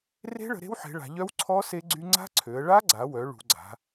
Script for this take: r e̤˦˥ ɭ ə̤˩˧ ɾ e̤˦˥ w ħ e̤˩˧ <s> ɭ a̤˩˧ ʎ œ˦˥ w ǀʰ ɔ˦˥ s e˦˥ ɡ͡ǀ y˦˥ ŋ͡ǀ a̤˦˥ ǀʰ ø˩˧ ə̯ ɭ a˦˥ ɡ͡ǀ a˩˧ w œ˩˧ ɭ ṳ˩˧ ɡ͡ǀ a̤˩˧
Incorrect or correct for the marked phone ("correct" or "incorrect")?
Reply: incorrect